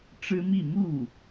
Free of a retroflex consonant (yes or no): no